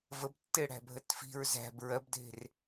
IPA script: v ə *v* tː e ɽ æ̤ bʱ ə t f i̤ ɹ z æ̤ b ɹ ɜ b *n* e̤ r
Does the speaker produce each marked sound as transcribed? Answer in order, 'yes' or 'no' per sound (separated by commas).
no, no